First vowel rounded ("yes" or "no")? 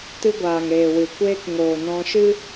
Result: no